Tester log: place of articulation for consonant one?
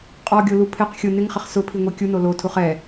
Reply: uvular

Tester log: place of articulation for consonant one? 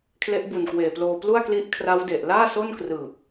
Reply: velar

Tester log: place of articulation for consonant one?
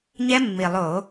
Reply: palatal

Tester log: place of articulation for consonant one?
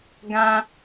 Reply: velar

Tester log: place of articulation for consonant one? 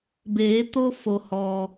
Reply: labial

